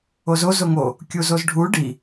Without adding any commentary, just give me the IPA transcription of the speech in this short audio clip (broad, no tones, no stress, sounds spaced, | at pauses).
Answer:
o z o z o ŋ o | kʲ u z o z ɖʱ u ɖ i